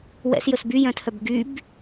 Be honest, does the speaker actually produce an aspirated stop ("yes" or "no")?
yes